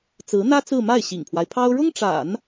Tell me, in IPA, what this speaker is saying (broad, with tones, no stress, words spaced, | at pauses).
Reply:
t͡sɹ̩˧˥n̪ä˥ t͡sɹ̩˥˧ ma˥˩ɪ̯ɕḭ˨˩ŋpʰwa˦ɪ̯pʰɑ˥ʊ̯ ɻʊ˥ŋʈ͡ʂa̰˨˩˦n